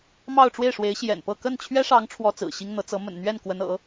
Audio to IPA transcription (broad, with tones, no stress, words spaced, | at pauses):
mɑ˥˧ʊ̯ʈ͡ʂwe˥˩ɪ̯ʂwe˧˥ɪ̯ ɕjɛ̰˨˩npɤ˥˧ kə˥˩nt͡ɕʰɥɛ˥ʂɑ˧˥ŋ ʈ͡ʂʰwɔ˥t͡sɹ̩˨˩ɕi˥ŋn̪ɤ˧˥ t͡sɤ˧˥ mə̰˨˩nn̪ɥɛ˥˩n kwə˧˥nɤ̰˨˩˦